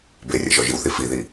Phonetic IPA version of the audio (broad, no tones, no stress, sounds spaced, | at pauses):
b e rʲ ɛ̰ ʒ ɔ ʒ i w θ i f i ð i